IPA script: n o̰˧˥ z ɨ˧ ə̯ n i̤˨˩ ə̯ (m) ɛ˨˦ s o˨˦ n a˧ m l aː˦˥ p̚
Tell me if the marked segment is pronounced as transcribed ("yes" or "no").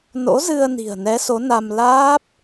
no